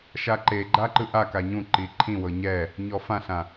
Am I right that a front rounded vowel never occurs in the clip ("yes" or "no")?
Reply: yes